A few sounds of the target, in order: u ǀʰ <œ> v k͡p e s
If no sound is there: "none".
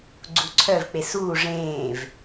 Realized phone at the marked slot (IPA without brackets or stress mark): œ